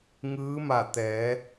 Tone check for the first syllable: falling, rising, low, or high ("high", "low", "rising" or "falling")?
rising